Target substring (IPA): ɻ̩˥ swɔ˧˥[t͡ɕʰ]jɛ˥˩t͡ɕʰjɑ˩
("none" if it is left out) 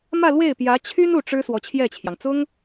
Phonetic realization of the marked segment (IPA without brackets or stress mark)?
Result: t͡ɕʰ